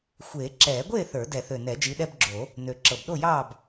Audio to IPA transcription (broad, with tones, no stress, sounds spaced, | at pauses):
xʷ eː˨˩˦ ǁ ɛː˨˩˦ ɡʷ eː˥˨ θ ə˞˨˩˦ d ɛ˨˩˦ θ ø˨˩ n ɛ˨˩˦ d͡ʒ i˨˦ ɗ ɛ˦ b ɡ͡ǁ o˨˩˦ | n ø˨˩ ǁ ɤ˨˩ b ɗ o˥˨ j ɑː˥˨ b